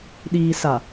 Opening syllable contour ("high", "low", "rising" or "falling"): low